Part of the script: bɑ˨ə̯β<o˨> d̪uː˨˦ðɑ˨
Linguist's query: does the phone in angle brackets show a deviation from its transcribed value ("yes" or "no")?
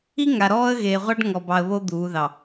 yes